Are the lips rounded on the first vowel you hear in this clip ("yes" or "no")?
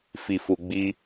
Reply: no